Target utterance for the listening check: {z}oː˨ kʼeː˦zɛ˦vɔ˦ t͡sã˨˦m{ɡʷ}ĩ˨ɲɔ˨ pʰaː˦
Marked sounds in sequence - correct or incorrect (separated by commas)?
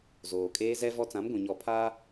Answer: correct, correct